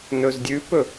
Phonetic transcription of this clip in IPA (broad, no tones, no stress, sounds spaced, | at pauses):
n ɵ z dʲ ʉ p ɵ